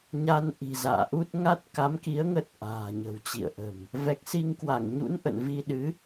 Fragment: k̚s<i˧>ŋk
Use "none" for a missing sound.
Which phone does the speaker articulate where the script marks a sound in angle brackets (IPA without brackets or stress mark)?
i˧